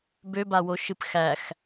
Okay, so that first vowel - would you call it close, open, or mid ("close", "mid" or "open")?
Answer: mid